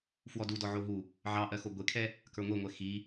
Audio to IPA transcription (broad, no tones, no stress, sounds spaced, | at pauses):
f w ɔ d u d ɔ ʕ o ɦ u | ʕ ɑ ʔ ɜ x o ɡʷ e kʰ ɛ | k ə˞ ŋʷ e ŋʷ ɛ x i